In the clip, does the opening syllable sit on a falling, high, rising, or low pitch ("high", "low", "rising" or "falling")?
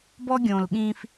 high